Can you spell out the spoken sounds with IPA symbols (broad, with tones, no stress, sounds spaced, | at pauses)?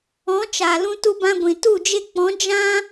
ɔ̃˨˦ t͡ʃ a˨ l ũ˧ t u˧ b ã˧ ɡʷ ĩ˨ t u˦˨ d͡ʒ e˧ k͡p ɔ̃˨˦ d͡ʒ ã˦